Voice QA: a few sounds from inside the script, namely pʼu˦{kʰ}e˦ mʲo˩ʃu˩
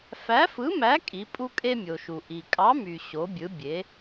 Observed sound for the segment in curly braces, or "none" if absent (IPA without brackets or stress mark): kʼ